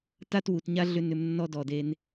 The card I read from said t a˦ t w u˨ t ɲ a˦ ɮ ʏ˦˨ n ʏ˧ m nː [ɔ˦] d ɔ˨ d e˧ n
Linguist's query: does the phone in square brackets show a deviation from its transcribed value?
no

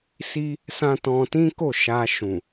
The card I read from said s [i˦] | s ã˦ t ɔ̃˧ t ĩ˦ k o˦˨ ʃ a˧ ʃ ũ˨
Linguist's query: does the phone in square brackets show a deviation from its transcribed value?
no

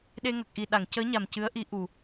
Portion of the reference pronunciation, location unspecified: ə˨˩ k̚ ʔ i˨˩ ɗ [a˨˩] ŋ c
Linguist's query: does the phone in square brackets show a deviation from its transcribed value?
yes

